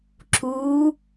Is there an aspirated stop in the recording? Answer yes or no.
no